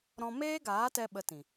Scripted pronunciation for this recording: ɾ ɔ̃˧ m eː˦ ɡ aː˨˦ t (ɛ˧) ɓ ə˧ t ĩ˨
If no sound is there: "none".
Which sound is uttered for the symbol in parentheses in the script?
ɛ˧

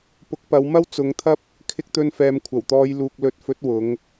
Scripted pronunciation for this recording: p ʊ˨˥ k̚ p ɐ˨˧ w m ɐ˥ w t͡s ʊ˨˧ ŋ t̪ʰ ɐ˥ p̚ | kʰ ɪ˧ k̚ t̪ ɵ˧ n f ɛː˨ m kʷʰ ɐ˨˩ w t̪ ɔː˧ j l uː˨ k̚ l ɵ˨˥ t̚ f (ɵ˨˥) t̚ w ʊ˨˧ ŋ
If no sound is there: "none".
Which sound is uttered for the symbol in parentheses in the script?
ɵ˨˥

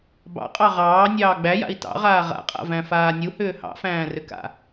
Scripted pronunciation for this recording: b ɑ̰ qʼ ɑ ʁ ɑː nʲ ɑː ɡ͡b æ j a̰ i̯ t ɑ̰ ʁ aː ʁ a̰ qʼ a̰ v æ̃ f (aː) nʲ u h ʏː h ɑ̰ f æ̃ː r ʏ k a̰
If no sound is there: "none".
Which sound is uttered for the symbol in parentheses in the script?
aː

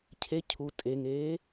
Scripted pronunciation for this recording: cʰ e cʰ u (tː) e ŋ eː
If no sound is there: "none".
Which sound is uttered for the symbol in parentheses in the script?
tʼ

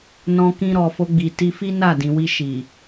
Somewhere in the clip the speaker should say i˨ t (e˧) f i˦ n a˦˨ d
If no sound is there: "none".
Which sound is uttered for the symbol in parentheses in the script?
i˧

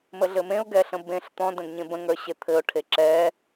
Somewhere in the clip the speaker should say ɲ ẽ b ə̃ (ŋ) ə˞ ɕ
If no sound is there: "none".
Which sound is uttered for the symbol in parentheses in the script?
ŋ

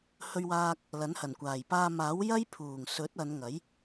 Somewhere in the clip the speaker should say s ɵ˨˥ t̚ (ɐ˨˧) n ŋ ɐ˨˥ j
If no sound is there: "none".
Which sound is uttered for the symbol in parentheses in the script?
ɐ˨˧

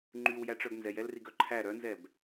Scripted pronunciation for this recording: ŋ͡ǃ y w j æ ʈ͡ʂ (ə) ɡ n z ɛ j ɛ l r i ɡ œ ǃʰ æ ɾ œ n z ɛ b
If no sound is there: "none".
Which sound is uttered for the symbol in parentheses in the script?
œ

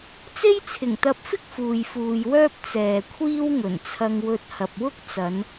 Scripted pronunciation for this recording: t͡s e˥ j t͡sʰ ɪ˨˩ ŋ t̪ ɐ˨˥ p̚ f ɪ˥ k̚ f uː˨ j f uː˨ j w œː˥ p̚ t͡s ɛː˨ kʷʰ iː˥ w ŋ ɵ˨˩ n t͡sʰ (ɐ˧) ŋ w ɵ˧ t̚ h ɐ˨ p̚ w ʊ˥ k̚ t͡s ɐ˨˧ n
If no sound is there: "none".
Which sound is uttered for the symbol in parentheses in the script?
ɐ˧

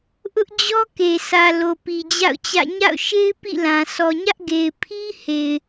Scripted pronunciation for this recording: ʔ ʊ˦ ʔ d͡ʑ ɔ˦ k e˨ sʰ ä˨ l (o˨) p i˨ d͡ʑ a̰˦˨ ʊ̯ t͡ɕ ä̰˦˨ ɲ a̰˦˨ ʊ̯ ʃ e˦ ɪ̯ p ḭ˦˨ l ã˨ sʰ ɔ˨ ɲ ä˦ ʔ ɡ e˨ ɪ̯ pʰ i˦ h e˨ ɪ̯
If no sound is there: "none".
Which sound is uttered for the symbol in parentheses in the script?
o˨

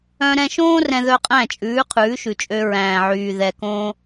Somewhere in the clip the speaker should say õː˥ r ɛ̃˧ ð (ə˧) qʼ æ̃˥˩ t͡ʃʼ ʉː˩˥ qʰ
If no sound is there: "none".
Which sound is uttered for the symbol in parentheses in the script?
œ˧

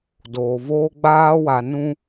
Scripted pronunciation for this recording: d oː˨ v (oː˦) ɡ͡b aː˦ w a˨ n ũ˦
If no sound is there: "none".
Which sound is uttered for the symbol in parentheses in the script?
oː˦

